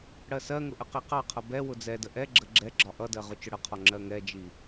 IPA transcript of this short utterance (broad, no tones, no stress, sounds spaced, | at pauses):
ɽ ɜ s ɜ ŋ ʊ ʔ ə q i q ɑ qʰ ʌ b ɛ w ʊ d͡z ɛ d ə ʔ ɛ ɡ͡ǁ ə ɡ͡ǁ ɛ ɡ͡ǁ ɒ ʔ ʌ d ɜ ʁ ʊ t͡ʃ ʊ ɽ ə qʰ ɔ ŋ͡ǁ ɜ ŋ ɛ d͡ʒ i